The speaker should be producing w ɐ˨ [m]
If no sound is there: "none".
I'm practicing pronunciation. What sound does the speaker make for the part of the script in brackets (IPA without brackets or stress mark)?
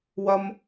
m